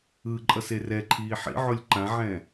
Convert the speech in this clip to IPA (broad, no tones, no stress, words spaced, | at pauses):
ɯǃʼʌs erɛǃʰiː ħḭʕolʲ ǃãʕɛ̃